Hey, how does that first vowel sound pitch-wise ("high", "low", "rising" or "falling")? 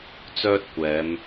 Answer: high